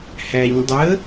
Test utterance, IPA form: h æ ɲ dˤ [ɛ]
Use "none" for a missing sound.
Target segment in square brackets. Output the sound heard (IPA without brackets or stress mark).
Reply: ə